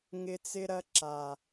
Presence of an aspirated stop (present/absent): absent